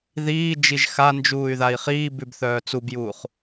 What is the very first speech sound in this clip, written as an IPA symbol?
ð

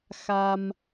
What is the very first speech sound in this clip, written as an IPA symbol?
x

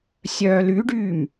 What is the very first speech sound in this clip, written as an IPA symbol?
sʲ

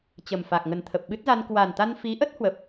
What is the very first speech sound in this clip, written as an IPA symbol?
t͡ɕ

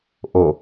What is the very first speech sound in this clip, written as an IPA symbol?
ʔ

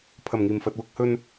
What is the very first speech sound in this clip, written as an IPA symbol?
pʰ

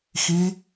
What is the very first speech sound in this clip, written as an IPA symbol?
x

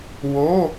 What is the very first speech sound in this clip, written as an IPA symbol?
w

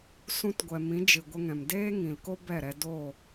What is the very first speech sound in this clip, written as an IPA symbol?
s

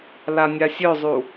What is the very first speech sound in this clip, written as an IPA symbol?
l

